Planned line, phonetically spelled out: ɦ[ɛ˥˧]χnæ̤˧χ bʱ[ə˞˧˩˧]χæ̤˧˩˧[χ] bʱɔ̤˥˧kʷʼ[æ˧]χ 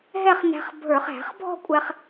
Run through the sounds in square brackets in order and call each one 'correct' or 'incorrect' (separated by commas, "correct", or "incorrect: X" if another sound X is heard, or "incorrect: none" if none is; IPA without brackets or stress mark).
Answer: correct, correct, correct, correct